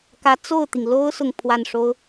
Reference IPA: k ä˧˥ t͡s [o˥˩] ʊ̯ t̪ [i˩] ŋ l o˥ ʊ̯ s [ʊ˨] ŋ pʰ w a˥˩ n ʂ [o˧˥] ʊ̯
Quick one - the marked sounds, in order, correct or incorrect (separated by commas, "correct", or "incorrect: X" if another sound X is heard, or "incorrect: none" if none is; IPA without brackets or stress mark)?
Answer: correct, correct, correct, incorrect: o˥